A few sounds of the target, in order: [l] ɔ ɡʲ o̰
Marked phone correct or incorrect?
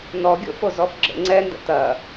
incorrect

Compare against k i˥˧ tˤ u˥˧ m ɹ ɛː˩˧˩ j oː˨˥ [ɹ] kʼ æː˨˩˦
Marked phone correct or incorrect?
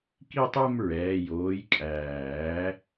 incorrect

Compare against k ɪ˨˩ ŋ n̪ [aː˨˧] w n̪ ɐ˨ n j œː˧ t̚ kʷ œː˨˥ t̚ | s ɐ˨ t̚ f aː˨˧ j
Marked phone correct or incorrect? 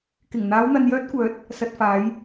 correct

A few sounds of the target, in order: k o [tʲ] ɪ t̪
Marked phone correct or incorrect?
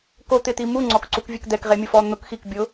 incorrect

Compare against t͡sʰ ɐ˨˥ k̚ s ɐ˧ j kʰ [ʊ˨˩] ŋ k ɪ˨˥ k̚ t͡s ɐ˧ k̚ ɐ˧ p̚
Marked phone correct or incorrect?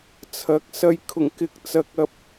correct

